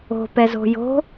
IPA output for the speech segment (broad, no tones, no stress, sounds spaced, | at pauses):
o̤ p ɛ z o̤ j o̤